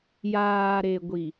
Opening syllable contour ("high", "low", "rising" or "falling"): low